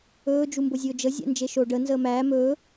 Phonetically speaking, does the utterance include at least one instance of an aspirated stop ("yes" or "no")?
no